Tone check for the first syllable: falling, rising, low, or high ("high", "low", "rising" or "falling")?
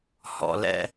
low